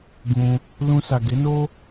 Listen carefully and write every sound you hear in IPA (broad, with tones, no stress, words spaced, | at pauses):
ɡũ˧ | lũ˧sa˨ ɡe˨˦no˦